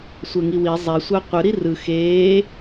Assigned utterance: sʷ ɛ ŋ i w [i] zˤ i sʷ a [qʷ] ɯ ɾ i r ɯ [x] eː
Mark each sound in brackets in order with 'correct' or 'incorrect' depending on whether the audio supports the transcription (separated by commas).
correct, correct, correct